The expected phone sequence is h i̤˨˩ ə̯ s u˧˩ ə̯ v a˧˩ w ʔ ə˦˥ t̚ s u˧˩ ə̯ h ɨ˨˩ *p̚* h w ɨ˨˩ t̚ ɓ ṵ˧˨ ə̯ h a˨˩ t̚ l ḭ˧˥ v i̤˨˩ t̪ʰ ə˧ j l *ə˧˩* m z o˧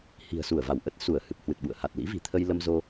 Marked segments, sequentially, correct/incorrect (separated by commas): correct, incorrect